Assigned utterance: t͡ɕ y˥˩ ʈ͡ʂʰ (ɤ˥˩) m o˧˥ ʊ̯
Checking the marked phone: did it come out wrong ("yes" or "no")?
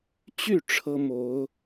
yes